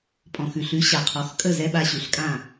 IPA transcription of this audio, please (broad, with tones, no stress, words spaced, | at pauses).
pʼɔ̃˩ xʉ˩ɬʉ˩˥ ɕa˩qʰɔ˩˥x kʼə˥˩zɛ˧ɓa˧ ɕʉ˩˥ɬkʼã˥˩